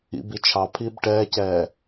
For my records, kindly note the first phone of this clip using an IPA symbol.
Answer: ḭ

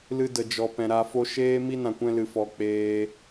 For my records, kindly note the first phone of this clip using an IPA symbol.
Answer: l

